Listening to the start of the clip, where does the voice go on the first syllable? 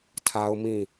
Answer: high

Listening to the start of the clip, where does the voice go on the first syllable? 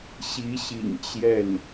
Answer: rising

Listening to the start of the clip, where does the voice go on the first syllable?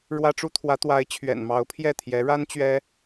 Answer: high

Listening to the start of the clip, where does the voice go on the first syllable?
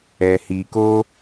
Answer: low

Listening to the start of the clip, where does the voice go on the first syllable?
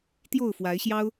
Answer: falling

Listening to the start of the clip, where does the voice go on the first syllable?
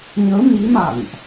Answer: rising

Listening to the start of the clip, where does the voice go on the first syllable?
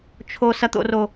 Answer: low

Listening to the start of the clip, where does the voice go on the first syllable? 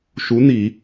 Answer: rising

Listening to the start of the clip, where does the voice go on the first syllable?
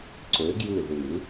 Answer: rising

